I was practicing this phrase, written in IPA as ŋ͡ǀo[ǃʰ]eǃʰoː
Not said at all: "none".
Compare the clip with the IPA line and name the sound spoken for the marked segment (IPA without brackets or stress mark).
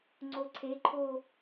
ǀʰ